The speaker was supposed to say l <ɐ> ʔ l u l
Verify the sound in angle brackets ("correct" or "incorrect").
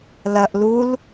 correct